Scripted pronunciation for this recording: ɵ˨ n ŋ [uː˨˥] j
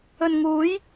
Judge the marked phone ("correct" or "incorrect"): correct